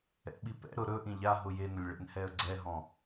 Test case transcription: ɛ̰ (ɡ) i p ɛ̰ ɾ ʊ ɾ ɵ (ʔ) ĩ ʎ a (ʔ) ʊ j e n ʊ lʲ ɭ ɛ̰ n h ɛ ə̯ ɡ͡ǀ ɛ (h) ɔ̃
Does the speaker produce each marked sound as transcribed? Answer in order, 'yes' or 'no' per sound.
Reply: no, yes, no, no

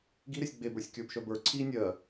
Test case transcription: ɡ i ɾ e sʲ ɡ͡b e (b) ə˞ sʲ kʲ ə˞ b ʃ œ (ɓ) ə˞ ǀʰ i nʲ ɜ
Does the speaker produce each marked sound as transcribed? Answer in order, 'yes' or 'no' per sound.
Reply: yes, no

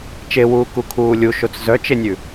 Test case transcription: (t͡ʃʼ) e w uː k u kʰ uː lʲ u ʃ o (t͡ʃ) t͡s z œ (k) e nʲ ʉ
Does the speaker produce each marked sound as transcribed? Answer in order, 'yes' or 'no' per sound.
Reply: no, no, no

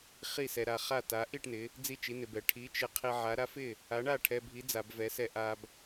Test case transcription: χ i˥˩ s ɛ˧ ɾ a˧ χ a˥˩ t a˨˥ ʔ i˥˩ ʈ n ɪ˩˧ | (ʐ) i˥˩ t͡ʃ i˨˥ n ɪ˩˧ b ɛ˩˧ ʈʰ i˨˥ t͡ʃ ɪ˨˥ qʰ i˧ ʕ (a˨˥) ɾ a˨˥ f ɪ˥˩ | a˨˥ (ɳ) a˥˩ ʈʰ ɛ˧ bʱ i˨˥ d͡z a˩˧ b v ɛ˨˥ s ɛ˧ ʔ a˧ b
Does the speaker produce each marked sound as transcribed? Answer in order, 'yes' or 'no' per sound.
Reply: no, yes, yes

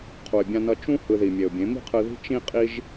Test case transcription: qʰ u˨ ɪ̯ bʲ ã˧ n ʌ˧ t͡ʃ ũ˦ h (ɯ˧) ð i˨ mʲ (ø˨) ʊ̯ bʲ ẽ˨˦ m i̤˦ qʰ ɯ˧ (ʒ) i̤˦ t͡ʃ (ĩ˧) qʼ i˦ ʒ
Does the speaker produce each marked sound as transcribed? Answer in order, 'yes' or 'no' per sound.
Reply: yes, no, no, no

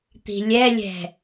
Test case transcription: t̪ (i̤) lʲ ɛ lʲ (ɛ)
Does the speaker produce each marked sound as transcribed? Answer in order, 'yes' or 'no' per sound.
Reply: yes, no

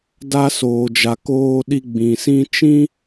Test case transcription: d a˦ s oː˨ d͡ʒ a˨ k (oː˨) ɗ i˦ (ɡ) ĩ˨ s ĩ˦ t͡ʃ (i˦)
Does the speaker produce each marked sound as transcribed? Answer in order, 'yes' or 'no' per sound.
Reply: no, no, no

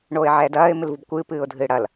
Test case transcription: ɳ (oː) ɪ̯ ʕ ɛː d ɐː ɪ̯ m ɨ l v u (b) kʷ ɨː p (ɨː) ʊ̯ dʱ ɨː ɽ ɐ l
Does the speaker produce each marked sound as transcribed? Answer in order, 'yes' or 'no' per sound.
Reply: yes, yes, yes

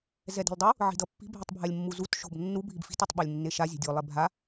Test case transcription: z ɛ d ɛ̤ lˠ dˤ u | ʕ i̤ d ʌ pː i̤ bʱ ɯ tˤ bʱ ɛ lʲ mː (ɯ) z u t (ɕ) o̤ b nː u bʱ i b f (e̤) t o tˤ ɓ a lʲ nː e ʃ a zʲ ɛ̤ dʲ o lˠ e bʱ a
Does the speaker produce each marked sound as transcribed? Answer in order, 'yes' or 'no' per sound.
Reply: no, no, no

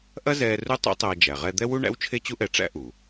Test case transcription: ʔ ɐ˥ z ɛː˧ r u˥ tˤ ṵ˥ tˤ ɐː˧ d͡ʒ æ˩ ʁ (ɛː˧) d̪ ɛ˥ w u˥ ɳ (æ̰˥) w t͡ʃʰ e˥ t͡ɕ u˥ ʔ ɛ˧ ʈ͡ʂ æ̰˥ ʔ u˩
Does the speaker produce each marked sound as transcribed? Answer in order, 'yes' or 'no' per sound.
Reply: no, yes

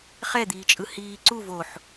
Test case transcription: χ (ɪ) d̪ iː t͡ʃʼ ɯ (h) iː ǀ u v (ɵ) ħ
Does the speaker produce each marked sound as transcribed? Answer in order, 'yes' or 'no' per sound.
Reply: no, yes, no

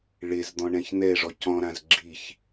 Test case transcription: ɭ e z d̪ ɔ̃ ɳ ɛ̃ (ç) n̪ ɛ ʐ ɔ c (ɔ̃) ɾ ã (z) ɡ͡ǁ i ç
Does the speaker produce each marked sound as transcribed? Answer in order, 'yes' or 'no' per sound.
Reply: yes, yes, yes

